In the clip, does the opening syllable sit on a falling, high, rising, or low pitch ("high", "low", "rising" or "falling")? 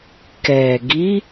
low